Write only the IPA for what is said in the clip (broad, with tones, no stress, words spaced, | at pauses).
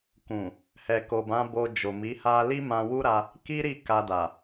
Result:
kũ˨ | hɛ˨ko˨bã˨˦ bo˧ d͡ʒo˨mi˨˦ha˦ li˦mã˧wu˦ɾa˧ | ki˦ɾi˦˨ ka˧da˨